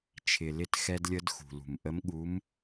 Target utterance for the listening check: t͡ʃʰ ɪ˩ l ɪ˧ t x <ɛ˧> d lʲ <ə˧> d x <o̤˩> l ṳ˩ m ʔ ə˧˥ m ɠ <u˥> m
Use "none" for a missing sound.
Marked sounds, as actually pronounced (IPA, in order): ɛ˧, ə˧, ṳ˩, u˧˥

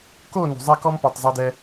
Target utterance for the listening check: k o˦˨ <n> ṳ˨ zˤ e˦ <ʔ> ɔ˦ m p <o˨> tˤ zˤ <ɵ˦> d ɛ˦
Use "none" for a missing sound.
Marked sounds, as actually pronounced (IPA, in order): n, k, o˨, o˦

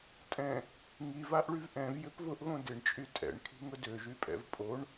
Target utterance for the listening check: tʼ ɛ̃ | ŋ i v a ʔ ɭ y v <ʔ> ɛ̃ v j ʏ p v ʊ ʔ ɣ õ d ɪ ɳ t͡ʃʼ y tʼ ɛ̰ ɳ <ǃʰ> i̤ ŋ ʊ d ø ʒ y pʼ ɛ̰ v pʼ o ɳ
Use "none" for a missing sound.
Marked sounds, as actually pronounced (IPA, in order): ʔ, kʰ

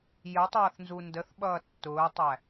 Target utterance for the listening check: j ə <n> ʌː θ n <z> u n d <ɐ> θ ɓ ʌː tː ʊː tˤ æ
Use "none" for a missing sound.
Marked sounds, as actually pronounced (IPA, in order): tˤ, z, ə

